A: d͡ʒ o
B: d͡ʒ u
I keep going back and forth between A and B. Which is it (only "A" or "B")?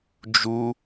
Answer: B